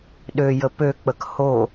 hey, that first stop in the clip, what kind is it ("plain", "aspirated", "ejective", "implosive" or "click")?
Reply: implosive